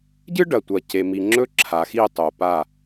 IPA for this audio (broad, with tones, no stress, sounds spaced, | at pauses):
ɟ ɨ˦ ɖ ɐ˨ tʷ ɐ˨ c e˨ m i˨ ŋ͡ǁ ɵ˦ ǁʰ a˨ x i˦˨ tˤ o˨ p a˦˨